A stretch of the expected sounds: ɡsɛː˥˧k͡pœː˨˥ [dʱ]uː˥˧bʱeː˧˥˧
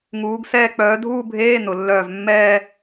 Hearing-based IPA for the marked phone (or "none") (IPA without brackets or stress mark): dʱ